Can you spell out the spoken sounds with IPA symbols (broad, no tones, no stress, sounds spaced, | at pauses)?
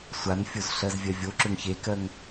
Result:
sʷ a n fʲ o z ɬ ɜ z vʲ ɜ vʲ o ǁ ø ŋ ç e k ɜ ŋ